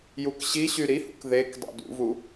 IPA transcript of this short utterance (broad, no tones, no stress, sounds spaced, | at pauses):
j u k ɕ i ɕ y ɾ i h ṵ k ð e k dˤ ṵ d ṵ v u